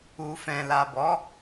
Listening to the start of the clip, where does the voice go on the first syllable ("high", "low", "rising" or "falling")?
low